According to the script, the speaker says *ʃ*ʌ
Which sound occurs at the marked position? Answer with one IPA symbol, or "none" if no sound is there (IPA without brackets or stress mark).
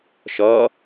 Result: ʃ